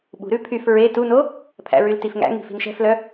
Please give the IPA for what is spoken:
ɓṳɾʉ pʰyf ɹe tuno | pʰæ̰ɹyltifŋæ̰ ŋi̤fi̤nʃɛ̤flœ

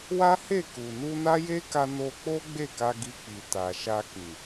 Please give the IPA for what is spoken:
wa˦he˦˨ ku˨ nu˧na˦je˦ka˧ no˧k͡po˦ ɡ͡be˦˨ka˧ɡi˧k͡pi˨ ta˨ʃa˧kĩ˨

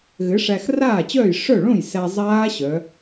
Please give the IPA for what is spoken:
ɣɘ˨˥ʂæ˧xraː˥˩ t͡ɕœː˥˩j ʂœ˥˩ ɭõ˥˩j sæ˧ zˤaː˦˥ɕœ˩˧

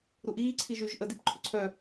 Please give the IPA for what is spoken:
ɾuʔiːǀʰi ʒyʒ ʔədip ǃʰʏǀʰœ

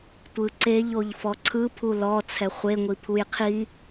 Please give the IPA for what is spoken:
tʷɯǀeʎ oʎfɔǀʰɯ pʰulɔ t͡sʰɛχʷe ŋʷipʰujqʰi

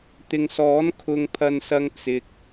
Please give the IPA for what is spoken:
t̪ɪ˨ŋsɔː˨˥n kʰʊ˧ŋpʰɐ˧nsɐ˧ŋ t͡sɪ˨k̚

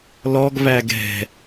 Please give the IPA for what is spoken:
lɔɡvæɡ ɛ̤

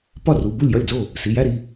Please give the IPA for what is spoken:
pɒ˥˩ru˩˧˩ bu˥˩lʲjɒ˥˩lʲd͡zo˥˩ | si˩˧˩jæ˥˧ɾi˩˧˩

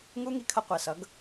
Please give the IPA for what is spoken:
ŋu˦ŋi˧kʰʌ˧ qʷɛ˨ sʌ˨˦ɡ

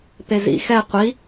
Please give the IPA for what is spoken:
pezḭ xɛ qʷi

